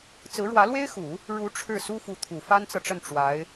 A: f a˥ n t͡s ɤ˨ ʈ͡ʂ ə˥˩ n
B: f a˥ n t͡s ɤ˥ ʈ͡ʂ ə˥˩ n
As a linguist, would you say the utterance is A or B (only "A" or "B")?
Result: A